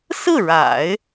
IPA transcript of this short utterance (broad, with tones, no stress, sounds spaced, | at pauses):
s ɹ̩˥˩ ɻ a̰˨˩˦ ɪ̯